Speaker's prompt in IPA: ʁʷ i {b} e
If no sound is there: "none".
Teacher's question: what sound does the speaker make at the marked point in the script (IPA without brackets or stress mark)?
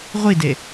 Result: d